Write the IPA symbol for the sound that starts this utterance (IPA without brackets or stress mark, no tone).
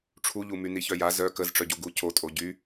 ʈ͡ʂʰ